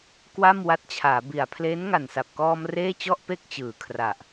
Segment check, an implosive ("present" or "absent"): absent